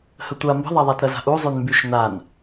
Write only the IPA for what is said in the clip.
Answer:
hətʷa mbə̤ðˤaðˤatɾɐ za̤ʔu zˤynmbyʃ nan

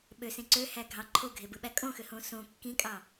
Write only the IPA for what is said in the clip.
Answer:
ɓøsẽ ǀøhæ ɡʱɑ ǃʰoɡʱebɯɓæ kʼõxøhõ sõ kːĩkʼɑ

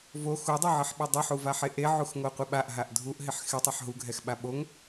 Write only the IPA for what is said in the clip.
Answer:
vo xudˤoʕɪħɓɛ dˤuħuvaħe ʔeʕuxŋoqʷɪ ɓaʔɦaʔ dʱuʔɦɪħ xɪtˤɛħ ɦuɡʱɛxɓa ɓoŋ

